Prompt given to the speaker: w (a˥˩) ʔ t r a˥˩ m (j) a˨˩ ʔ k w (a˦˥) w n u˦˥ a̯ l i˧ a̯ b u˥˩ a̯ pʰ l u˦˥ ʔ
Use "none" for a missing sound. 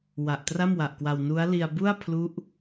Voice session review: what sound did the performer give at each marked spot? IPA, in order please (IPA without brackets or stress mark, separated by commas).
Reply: a˨˩, w, a˧